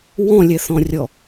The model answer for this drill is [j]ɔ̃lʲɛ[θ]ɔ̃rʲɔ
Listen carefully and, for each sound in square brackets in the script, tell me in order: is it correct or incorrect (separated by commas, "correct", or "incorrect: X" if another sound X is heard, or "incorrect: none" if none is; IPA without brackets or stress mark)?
incorrect: w, correct